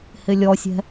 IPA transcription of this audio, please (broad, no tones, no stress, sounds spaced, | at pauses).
h ɪ lʲ ɔ sʲ ɛ̤